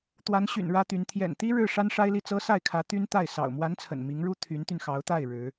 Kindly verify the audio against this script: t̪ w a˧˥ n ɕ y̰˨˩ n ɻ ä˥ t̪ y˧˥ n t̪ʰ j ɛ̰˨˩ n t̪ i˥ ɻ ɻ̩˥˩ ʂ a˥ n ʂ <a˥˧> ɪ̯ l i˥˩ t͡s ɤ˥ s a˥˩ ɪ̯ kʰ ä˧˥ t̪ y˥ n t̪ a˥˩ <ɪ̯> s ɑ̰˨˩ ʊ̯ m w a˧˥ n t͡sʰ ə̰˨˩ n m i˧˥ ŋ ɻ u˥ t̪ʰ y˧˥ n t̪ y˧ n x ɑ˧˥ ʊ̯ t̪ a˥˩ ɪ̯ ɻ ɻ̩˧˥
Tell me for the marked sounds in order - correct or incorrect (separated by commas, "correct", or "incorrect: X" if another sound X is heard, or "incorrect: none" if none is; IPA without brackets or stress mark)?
incorrect: a˥, correct